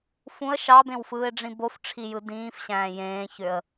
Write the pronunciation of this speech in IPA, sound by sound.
fũə̯ ʃɑbẽwfɯːɪ̯ɖ͡ʐĩ bofʈ͡ʂʰijɯ dĩːfɕæ̃ː jẽːçøə̯

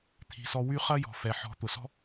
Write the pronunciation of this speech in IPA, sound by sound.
t̪ʰi̤˩sɔ˨ wy˦χɐ˥ jɔ̤˩fɛ˩ħɔ̤˨ t̪ʊ˩sɔ̤˥

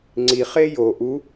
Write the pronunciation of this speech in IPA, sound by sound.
ŋ͡ǀi χejo ʔu

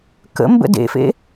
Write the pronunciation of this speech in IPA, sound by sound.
kə̰mbə̰ dḛfḛ

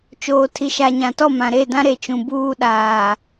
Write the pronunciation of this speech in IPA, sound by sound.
t͡ʃoː˨tʰi˨ʃa˨ ɲã˨tɔ˦˨mã˨ ɾe˦˨dã˦ ɾe˨t͡ʃũ˨ buː˦ɗaː˨

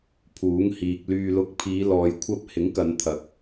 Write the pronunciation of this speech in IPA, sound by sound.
pʰuː˨˥ŋhiː˨k̚ lyː˨lʊ˨˥k̚pʰiː˨˧ lɔː˨jkʷʰɐ˧p̚ hɪ˨˥ŋkɐ˨˧nt̪ʰɐ˨k̚

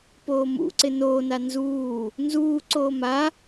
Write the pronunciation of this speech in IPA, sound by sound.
poːmṵǀɪ noːna nzuː | nzuːǀoː ma

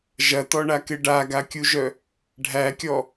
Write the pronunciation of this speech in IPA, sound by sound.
ʒɐtɔɳakɪ ɖaɡakʲuʒœ | ɖʱækʲɔ

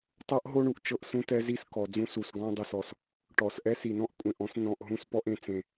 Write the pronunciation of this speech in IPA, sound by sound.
tˤɤ˦ʔɦo˦ɳu˨ʔt͡ʃɤ˦ʔ sũ˦tɛ˦ zi˦skɔ˨d͡zũ˦ su˨sɡɔ̃˦ dˤu˨sɔ˨s | ʈɔ˨s ʔɛ˦si˨nɔ̃˦ʔ kʷʼẽ˨ʔɔ̃˦snɔ̃˨ʔ ɦũ˦spɔ˦ʔẽ˨t͡sẽ˨

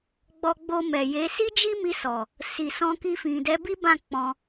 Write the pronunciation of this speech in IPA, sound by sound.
ɡ͡bɔ˧ɡ͡bo˧mɛ˨je˨˦ si˦d͡ʒi˦mi˧sɔ˨ | si˨sɔ̃˧ki˧fĩ˨ dɛ˨˦bi˦bã˦˨ k͡pɔ̃˧

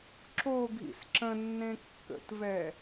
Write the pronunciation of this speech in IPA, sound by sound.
ǁoɡʱḭs ǁə̃nːẽ kːə̰tvɛ

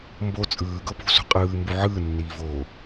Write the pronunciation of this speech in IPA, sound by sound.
mbo t͡sʼɯːɡɤ pṳsṳ qʼɯːmbu ʕɯːnːiːvoː

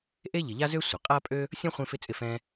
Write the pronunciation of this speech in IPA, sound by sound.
ʔe˥ ʎɪ˨ʎa˥zø˥ sʷɪ˩ qʼa˥pʼø˥ | sʲɔ̃˥χʷẽ˦fɪ˦ t͡sʼɪ˦fɛ̃˦

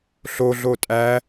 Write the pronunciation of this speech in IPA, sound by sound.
ɬoɮo tʼæ

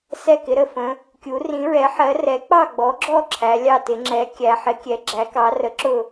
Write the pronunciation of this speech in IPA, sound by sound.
sɛ˥˩kɪ˩˥ ɾə˥˩fə̃˩˥ | kʲu˩˥ rĩ˩˥ ɹɛ˩˥ħɜ˩˥ rɛ˩˥k͡pɑ˥˩ɡ͡bɔ˩˥ɡ͡ǁɔ˥˩ ǁʰæ˩˥lʲɑ˥˩tɪ˩˥ ŋ͡ǁɛ˩˥ kʲæ˩˥ ħɪ˩˥kʲɛ˩˥ ɡ͡ǁæ˩˥kɑ˩˥ rə˩˥ǁʊ˥˩

